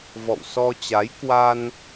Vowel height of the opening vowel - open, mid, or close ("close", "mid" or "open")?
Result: mid